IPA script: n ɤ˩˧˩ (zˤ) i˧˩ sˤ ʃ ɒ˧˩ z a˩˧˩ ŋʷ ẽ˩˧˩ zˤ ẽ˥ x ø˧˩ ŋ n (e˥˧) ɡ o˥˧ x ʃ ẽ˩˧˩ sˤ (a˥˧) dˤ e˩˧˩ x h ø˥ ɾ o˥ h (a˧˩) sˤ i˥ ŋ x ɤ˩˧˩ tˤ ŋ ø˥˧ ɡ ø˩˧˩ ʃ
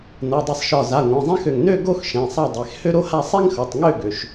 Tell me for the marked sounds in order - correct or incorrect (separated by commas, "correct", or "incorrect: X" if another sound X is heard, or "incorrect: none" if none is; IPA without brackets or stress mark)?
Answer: incorrect: dˤ, incorrect: ø˥˧, correct, incorrect: a˥˧